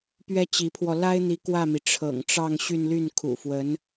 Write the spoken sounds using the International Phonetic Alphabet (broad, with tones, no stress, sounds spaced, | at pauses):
p ɥ ɛ˥ t͡ɕ i˧˥ pʰ w ɔ˧ l a˥ ɪ̯ n̪ i˧˥ k w ä˥˩ m i˩ ʈ͡ʂʰ ɤ̰˨˩ ŋ ʈ͡ʂ ɑ˥˧ ŋ ɕ y˥˧ n l y˥˩ n kʰ ṵ˨˩ f w ə˧˥ n